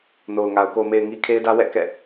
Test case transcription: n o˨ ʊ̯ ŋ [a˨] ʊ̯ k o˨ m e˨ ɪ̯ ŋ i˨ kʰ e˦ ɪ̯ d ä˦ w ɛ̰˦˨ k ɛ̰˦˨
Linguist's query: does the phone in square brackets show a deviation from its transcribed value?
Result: no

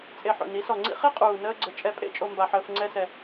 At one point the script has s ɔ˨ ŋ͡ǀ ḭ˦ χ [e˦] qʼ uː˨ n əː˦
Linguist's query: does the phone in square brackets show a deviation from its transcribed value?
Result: no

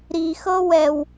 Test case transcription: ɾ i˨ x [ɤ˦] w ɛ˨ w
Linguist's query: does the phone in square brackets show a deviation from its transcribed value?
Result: no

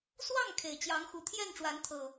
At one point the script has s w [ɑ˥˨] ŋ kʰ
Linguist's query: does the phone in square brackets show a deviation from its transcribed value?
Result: no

